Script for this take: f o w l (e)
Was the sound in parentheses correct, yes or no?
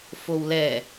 no